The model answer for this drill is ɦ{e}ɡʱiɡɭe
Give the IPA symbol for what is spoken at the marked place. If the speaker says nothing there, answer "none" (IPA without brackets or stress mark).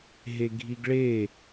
e